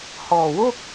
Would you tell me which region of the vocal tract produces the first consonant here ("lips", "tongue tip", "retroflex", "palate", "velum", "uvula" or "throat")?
throat